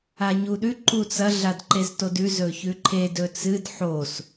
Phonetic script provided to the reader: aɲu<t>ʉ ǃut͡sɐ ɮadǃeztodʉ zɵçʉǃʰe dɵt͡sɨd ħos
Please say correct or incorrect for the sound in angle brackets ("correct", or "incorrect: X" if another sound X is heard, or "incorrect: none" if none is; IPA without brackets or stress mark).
incorrect: ɗ